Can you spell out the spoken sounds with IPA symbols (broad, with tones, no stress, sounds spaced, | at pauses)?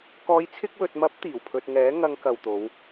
k ɔː˨˧ j t͡sʰ ɪ˧ k̚ w ɵ˨ t̚ m ɐ˨˥ p̚ t̪ iː˨˩ w pʰ ɵ˧ t̚ ŋ ɛː˨˥ ŋ ɐ˧ ŋ k ɐ˨ w t̪ o˨˧ w